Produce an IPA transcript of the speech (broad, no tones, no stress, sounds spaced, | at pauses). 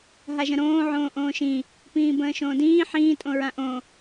ɦ a ʒ ə̃ ɾ õː ʕ õː ʔ õː ʃ ĩ | p ĩː b ə̃ː ʃ õː d ĩː ħ ĩː tʼ õ ɹ ã ʔ õ